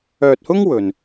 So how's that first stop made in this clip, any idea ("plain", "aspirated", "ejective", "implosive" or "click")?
plain